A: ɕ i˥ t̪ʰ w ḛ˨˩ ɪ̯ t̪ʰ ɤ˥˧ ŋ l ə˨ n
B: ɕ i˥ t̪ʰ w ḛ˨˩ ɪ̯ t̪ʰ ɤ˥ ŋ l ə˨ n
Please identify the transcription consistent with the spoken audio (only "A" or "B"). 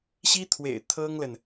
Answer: B